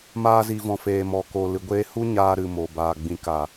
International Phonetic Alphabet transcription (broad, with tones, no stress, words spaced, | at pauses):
maː˧zi˨vɔ̃˨ feː˨mɔ˨ko˨ lɨ˨ɡʷeː˧hu˦ ɲaː˧ɾɨ˨ mo˨ baː˨ ɡ͡bĩ˨ ka˨